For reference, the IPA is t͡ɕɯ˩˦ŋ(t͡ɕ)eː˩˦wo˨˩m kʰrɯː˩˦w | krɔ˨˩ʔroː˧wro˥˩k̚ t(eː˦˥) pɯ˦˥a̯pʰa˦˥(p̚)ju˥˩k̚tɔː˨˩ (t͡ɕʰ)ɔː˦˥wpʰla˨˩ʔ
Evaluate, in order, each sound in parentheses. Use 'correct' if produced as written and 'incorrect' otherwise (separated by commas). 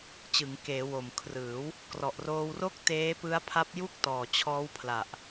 incorrect, correct, correct, correct